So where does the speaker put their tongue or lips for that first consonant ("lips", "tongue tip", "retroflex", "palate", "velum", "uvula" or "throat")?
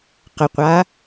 uvula